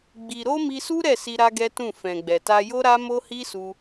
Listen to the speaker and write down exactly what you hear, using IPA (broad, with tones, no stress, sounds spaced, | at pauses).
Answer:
ɡ͡b i˨ ɾ o˧ m i˧ s u˦ ɾ ɛ˦˨ s i˧ ɾ a˦ ɡ ɛ˦ t ũ˦˨ f ɛ̃˨ ɡ͡b ɛ˨ t a˧ j o˦ ɾ a˦ m o˦ h i˦ s u˧